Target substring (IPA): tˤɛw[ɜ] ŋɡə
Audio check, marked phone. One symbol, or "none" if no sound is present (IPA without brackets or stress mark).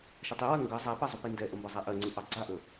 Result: ɜ